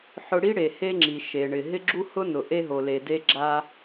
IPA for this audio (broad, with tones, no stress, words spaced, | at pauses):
ħʊ˥ ɽi˥ɽe˩ he˥ŋ͡ǁi˩ ʃe˩ɳɪ˩ ɦɪ˥ɡ͡ǁu˥hʊ˥nʊ˩ ʔe˥ɦo˩le˩ de˥ɡ͡ǁa˥